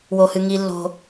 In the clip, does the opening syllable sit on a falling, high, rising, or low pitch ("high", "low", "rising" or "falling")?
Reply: low